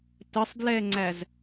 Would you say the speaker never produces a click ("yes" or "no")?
no